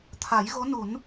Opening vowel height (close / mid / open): open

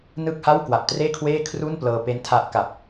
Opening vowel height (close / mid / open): close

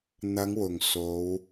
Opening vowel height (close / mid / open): open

